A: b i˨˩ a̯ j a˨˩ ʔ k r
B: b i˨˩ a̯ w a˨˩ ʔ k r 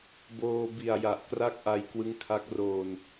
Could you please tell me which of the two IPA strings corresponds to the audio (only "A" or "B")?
A